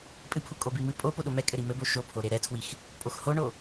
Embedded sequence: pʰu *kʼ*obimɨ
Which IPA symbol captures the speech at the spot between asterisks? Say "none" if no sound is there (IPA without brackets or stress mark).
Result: kʼ